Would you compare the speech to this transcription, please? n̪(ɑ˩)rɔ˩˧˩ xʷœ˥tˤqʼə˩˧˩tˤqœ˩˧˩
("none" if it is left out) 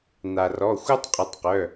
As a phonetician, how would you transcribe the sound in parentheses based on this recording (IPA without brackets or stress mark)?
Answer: a˩